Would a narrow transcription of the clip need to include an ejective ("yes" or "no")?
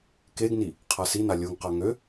no